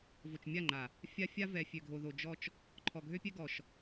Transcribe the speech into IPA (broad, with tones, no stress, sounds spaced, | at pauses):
v o˨ t͡ʃ mʲ a˦˨ ŋ͡ǃ a˨ | fʲ a˦ fʲ a˦ v ɛ˨ fʲ ø˨ ɡʱ o˨ ð o˨ d͡ʒ ɔ˦ t͡ʃ | ǃʰ ɔ˨ ɡʱ ø˦ pʲ ɛ˦ ɡ ɔ˨ ʃ